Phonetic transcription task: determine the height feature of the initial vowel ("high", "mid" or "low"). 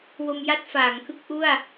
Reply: mid